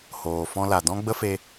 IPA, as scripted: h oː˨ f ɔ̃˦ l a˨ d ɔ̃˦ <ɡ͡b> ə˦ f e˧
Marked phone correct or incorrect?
correct